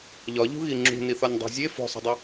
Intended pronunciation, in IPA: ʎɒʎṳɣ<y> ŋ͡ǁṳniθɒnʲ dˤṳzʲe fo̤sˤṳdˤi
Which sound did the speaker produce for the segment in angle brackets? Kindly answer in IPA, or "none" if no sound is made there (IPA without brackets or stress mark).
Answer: i